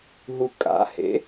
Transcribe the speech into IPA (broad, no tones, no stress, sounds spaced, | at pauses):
ɦ u kʼ a̰ h ḛ